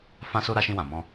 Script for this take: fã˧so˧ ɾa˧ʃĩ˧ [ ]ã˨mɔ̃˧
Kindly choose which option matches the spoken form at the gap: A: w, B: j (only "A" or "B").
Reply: A